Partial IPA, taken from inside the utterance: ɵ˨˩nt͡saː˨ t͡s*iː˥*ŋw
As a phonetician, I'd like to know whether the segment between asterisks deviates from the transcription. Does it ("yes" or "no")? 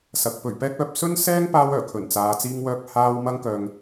yes